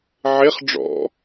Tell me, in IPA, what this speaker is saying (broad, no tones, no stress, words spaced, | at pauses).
ʕeχ ɖ͡ʐɔ̰